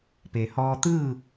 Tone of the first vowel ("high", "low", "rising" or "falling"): low